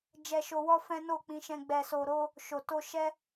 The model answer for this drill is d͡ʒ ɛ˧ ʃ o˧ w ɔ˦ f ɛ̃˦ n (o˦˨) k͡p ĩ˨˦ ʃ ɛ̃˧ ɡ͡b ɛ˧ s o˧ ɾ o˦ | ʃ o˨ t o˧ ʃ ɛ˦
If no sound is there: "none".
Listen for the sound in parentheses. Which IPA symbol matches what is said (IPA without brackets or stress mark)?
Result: o˦˨